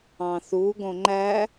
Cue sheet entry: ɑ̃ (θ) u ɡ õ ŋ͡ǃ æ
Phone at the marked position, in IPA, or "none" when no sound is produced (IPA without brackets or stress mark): θ